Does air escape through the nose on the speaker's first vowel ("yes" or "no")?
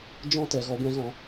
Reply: yes